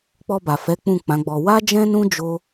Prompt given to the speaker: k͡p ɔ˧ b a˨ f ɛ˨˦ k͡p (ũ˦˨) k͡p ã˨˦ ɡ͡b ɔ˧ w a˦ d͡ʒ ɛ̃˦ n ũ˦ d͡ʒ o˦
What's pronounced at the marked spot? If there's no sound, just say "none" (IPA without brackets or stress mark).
ũ˦˨